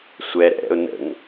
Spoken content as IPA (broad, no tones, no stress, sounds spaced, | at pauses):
sʷ ɛ ɾ ɛ̰ ɾ ɛ̰ ʊ̯ n ə̰ ŋ